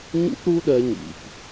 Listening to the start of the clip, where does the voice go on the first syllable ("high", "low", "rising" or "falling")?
high